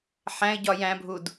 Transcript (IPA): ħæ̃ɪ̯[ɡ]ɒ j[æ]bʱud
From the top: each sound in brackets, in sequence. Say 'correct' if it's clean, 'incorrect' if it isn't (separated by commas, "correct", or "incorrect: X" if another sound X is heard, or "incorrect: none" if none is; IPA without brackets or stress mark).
incorrect: ɟ, incorrect: æ̃